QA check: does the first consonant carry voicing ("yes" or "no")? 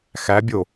no